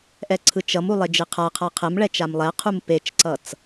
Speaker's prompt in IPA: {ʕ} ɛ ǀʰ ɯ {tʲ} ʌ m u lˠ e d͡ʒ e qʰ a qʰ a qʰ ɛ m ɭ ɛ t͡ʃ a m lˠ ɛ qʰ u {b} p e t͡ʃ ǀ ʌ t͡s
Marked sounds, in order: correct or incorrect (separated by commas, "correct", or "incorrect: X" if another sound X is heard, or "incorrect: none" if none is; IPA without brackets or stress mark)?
incorrect: ʔ, incorrect: t͡ʃ, incorrect: m